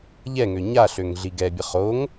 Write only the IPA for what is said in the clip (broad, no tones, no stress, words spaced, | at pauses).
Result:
ʎɛŋø ɲaɬøŋ ɮiɡɛbʲə χoŋ